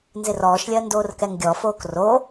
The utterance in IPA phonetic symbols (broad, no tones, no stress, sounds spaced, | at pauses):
n z ɪ r ɔː ʃ lʲ ɜ n d oː r k ɛ ŋ ɡʲ ɔ f oː k r o